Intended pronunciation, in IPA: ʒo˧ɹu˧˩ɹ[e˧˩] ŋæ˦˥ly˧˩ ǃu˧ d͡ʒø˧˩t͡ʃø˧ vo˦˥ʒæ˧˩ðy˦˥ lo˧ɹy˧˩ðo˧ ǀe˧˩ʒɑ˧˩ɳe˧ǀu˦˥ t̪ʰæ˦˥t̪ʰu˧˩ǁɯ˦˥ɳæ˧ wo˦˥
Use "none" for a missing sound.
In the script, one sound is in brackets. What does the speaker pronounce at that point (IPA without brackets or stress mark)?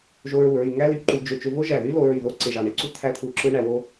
y˧˩